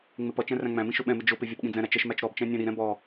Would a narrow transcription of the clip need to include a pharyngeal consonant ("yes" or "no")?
no